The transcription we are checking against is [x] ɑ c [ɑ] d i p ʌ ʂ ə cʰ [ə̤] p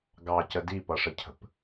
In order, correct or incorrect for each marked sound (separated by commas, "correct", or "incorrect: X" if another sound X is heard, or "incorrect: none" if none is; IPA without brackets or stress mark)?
incorrect: ɡ, incorrect: ə, correct